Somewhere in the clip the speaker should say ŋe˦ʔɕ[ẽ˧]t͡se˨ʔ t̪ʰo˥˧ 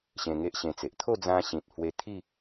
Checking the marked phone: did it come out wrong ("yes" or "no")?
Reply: no